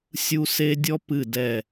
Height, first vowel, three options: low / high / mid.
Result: high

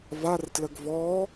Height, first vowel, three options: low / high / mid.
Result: low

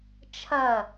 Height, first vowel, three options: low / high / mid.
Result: low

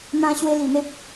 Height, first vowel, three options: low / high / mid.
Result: low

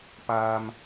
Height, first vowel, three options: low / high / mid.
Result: low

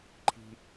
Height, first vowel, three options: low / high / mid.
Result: high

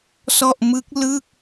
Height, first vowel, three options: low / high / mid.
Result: mid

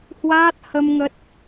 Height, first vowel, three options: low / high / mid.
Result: low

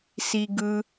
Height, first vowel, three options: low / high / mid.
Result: high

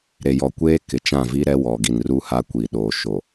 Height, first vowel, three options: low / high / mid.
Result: mid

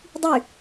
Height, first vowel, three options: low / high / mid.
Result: high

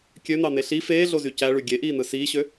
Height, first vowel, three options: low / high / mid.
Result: mid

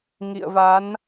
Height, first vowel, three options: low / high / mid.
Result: high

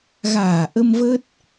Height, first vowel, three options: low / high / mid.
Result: low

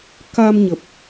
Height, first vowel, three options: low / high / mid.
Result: low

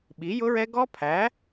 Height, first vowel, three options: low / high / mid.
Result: high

